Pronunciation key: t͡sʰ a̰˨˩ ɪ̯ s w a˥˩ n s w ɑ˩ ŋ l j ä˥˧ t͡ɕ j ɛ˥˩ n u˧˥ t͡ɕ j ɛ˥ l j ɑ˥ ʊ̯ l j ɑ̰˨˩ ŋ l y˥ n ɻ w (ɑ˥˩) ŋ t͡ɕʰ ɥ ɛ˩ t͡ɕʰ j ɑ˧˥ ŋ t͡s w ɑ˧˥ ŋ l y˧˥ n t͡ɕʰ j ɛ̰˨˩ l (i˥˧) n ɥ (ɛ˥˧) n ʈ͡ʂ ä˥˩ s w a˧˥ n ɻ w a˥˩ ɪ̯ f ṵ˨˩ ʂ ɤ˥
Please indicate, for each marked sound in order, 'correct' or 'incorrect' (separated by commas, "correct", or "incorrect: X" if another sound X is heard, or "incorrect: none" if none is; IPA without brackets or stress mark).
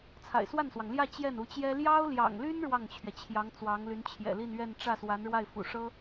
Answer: correct, correct, correct